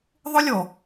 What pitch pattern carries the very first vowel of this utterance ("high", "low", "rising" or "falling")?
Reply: high